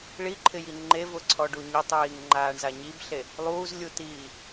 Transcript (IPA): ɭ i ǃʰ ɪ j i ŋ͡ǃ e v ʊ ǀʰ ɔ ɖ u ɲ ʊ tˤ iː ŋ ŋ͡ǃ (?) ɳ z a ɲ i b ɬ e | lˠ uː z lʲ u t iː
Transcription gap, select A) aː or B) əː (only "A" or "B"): A